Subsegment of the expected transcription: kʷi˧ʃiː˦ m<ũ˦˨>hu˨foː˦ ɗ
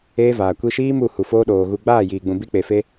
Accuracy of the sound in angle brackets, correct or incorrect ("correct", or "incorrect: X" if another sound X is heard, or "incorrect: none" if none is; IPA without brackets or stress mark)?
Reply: incorrect: u˦˨